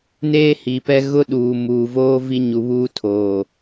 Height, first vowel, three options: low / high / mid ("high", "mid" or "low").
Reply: mid